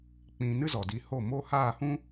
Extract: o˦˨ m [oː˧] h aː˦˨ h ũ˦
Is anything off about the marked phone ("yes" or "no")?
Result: yes